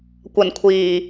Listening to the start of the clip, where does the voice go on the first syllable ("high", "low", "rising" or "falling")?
low